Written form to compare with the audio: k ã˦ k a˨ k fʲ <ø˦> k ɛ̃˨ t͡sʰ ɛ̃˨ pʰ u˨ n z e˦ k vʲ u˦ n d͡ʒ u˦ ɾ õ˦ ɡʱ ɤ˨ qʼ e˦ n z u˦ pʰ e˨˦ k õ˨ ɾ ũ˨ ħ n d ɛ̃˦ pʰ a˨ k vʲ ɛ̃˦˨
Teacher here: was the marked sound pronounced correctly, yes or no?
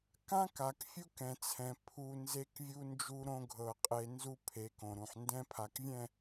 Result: no